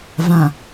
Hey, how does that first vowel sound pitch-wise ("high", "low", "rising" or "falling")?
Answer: low